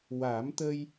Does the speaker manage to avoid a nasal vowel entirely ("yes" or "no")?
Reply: yes